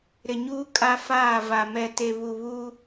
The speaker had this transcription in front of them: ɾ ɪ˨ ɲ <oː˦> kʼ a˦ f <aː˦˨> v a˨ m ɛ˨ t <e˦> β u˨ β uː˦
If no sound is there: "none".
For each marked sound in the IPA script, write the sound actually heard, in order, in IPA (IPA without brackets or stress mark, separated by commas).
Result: uː˦, aː˦˨, e˨